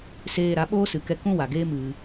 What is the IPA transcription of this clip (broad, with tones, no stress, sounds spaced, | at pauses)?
s eː˧ ɾ a˨˦ ɓ oː˦ s ɨ˨ k ɛ˧ k ũ˦ w a˨ ɡ eː˦ m ɨ˧